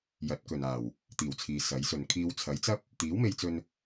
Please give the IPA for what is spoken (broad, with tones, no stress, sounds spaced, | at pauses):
j ɐ˨˥ t̚ k ɵ˨ n aː˨˩ w | t̪ iː˨˩ w t͡sʰ iː˨ s ɐ˨˥ j s ɵ˨ n kʰ iː˨˧ w t͡sʰ ɐ˨˥ j t͡s ɐ˥ p̚ | t̪ iː˨˥ w m e˧ j t͡s ɵ˧ n